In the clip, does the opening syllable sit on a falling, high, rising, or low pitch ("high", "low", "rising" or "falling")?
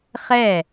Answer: falling